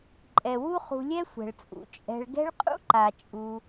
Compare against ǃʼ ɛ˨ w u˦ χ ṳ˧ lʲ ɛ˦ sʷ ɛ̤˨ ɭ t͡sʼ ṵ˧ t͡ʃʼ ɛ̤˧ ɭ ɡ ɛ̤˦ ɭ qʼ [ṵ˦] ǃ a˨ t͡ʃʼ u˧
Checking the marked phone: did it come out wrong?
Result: no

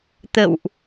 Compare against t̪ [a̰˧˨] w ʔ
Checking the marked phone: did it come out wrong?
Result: yes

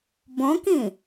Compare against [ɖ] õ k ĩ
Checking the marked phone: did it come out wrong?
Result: yes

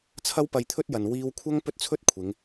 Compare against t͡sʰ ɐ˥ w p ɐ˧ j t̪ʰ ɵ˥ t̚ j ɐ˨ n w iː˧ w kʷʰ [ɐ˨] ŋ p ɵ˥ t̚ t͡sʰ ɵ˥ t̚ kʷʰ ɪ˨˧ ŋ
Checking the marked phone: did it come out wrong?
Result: yes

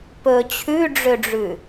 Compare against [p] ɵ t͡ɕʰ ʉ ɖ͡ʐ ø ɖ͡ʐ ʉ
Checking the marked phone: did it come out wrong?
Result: no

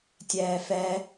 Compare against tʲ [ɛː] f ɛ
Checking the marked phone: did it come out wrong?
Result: no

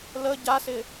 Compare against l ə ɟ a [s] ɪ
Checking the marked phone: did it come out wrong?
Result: no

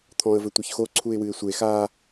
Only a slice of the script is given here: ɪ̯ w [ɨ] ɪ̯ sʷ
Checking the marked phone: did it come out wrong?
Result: no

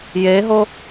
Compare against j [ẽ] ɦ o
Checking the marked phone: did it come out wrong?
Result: yes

